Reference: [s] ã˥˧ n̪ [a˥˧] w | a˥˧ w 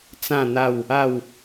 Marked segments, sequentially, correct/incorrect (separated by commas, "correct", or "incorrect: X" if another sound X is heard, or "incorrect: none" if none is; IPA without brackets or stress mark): incorrect: t͡s, correct